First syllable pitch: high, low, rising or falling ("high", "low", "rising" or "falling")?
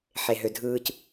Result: low